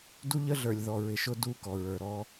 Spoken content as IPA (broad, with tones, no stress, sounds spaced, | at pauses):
d u˦ ʎ ə˦ ɮ ə˞˨ lʲ ð ɔ˨ ɹ ɪ˨ ʃ ʊ˦ d u˦˨ k ɔ˨ ɹ ə˞˨ ɾ ɔ˦